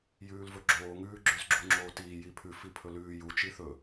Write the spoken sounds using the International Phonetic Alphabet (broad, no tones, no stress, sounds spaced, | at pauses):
j ʉː l v ɵ ɡ͡ǁ oː ŋ ʉː ɡ͡ǁ ʉ z ɡ͡ǁ u ŋ͡ǁ oː t iː j i pʰ ʉ f i pʰ ɵ l ʉː j u t͡ʃ i θ ɵ